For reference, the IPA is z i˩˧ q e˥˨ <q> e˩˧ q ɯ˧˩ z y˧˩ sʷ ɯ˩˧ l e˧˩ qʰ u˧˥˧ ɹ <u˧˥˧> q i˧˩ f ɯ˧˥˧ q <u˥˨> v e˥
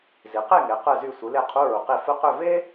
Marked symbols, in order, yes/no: no, no, no

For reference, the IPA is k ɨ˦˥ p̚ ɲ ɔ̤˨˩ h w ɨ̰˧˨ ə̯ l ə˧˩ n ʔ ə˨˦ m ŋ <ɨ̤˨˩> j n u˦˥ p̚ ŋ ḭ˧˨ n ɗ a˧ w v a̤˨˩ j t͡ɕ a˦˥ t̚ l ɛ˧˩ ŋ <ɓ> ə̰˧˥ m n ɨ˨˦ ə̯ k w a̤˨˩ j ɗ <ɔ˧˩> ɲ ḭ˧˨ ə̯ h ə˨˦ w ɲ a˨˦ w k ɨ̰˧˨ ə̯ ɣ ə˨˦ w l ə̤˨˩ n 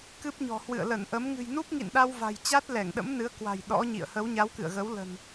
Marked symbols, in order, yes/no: yes, no, no

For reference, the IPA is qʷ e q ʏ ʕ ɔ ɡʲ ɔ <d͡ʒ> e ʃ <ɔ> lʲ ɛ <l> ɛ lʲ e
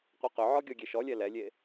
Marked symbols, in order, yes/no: no, yes, yes

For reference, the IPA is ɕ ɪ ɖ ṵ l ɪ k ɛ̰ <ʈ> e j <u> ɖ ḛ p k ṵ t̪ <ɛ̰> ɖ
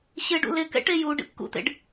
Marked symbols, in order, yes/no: yes, yes, no

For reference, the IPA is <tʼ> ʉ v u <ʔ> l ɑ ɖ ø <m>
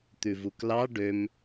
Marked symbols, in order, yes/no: no, no, yes

